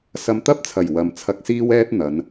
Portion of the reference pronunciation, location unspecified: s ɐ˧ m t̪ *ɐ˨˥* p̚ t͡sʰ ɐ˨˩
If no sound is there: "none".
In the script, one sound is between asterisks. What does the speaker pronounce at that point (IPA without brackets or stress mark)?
ɐ˥